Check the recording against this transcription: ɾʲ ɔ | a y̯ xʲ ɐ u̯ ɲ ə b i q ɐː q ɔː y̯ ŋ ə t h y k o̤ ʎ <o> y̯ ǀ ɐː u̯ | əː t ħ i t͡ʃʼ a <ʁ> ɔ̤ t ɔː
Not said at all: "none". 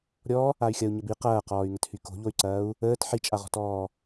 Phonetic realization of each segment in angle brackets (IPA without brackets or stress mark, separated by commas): o, ʁ